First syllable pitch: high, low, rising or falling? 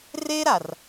high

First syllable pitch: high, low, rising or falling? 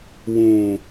low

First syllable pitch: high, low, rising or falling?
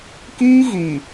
high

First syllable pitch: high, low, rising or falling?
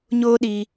high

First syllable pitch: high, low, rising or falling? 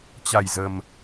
low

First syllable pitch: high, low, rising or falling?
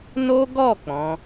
high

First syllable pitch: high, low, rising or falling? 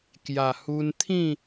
low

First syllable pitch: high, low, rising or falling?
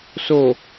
low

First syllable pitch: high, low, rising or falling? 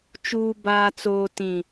low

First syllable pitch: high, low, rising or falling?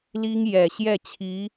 high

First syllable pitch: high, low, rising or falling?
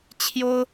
high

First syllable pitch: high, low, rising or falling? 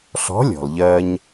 rising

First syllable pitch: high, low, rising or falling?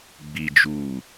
low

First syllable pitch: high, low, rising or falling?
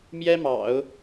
high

